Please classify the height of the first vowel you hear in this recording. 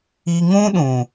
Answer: high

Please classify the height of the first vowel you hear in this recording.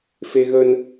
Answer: mid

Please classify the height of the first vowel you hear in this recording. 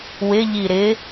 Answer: high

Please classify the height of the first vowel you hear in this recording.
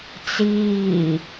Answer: high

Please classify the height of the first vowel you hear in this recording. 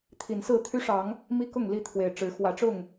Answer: high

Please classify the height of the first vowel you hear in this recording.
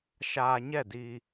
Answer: low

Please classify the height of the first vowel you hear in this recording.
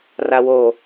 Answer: low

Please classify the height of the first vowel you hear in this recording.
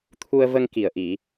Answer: high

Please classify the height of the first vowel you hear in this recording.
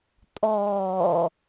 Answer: mid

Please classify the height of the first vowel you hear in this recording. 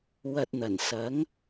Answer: low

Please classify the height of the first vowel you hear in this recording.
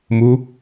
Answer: high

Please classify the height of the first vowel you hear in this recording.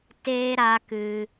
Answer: mid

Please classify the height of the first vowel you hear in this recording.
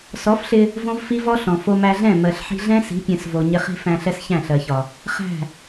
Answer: mid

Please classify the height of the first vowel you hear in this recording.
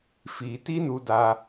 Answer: high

